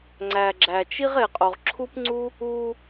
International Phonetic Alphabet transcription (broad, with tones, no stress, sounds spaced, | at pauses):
ŋ͡ǀ æ˨ ɡ͡ǁ æ˨ t͡ʃ i˥ ʁ e˨ qʼ o˨ ʁ ǁʰ u˥ p ŋ͡ǀ u˥ | u˦